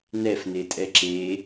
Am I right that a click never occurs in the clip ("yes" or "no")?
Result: no